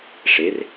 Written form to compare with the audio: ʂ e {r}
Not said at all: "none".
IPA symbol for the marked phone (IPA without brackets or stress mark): r